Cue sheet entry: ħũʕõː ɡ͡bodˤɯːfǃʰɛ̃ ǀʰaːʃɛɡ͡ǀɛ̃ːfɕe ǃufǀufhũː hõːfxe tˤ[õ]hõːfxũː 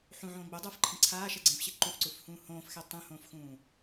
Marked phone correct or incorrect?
incorrect